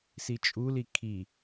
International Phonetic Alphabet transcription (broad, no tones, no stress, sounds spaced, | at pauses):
s i t͡ʃʼ u l i kʰ i